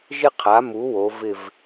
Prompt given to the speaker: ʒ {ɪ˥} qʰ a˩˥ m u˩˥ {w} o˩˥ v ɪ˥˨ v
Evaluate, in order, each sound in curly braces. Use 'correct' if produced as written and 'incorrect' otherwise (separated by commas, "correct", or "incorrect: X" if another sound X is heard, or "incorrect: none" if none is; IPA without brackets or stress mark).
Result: correct, correct